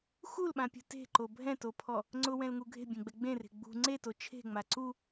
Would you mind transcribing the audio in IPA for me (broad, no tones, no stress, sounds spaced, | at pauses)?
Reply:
x u l ɓ ã pʲ ṳ t e̤ ǃ o bʱ ɛ̃ t o pʰ ɔ | ŋ͡ǀ ʊ w ɛ̃ l ŋ u ɡʱ e̤ bʲ ẽ ɡ͡b ɛ ɡ͡b ẽ r e̤ ɡ͡b ṳ ŋ͡ǀ e t o t͡ʃʰ e̤ ŋ͡m a ǀ u